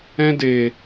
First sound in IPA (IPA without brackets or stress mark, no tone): ɛ̃